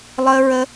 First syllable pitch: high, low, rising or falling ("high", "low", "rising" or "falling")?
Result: high